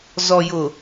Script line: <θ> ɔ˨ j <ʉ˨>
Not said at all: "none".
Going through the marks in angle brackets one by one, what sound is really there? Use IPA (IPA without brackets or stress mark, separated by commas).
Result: z, ʊ˨